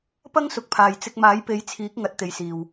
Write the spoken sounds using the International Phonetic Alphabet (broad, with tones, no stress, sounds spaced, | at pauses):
p ɐ˥ ŋ s ʊ˨ k̚ pʰ aː˨ j t͡s ɪ˧ k̚ m aː˨˥ j p e˨˥ j t͡sʰ iː˨˥ k̚ ŋ ɐ˨ t̚ t̪ e˨ j s iː˨ w